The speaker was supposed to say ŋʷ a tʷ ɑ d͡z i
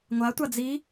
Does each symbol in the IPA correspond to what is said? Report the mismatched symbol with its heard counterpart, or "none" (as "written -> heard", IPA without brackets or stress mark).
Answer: ɑ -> a